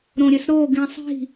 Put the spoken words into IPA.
ɾõɾʲøsɾo ɡĩsˤi̤

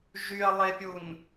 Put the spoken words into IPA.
ʒyɐ̯lˠepʲun

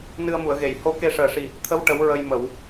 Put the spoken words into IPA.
nɨ˧ə̯mu˨˩˨ə̯ɣe˨˩˨j ho˧ ke˧ʂəː˨˩ʂi˨˩ | t̪ʰə˧˥w ʈə˧˥wɹə˧jmə˨˩˨w

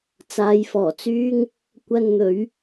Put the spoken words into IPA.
t͡saː˨˧jfɔː˨˩t͡syː˥ŋ | kʷɐ˧n n̪ɵ˨˥ɥ

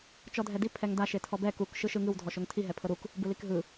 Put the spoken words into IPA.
t͡ʃɔdʱɛdi pʰɛŋda ʃetʰɔbɛ kuk ʃɯʃɯŋɯw dʱɔʃoŋtʰi ɦɛpʰɤɾuk | bɯlikɦɯ

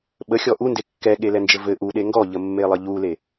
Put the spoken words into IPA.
ɓəxʲɔ ʔunde kːɛɠelɛnd͡ʒɘ vɘ ʔuɗe ŋɡɔʎəmːelˠə ʎule

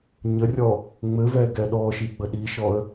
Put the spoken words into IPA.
ɲərʲɔ | ŋ͡mɘvɛɡɛ ɗɔʃiɡ͡bə ɗiʃɔə̯

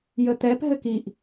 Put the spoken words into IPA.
jət̪ɛp ɦɘkiʔ

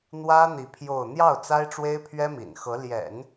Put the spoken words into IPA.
n̪wä˥n̪i˧˥ pʰjo˥˧ʊ̯ n̪jɑ˥˩ʊ̯ t͡sa˥ɪ̯ʈ͡ʂwe˥ɪ̯ pʰɥɛ˥mḭ˨˩nxɤ˧˥ ljɛ̰˨˩˦n

